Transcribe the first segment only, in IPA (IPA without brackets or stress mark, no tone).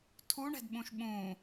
tʰ